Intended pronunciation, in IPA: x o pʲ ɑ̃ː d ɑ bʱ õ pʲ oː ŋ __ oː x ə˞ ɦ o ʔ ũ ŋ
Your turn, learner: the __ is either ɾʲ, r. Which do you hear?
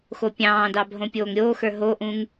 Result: ɾʲ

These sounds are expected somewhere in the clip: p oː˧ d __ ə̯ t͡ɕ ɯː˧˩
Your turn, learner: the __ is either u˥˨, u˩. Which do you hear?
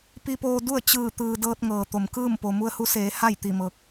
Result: u˥˨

